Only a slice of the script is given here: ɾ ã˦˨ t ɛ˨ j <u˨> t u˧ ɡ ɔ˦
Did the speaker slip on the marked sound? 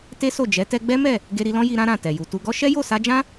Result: no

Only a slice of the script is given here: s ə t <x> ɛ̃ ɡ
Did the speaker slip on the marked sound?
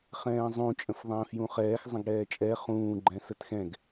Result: no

